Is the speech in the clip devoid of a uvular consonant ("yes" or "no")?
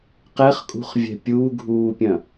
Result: no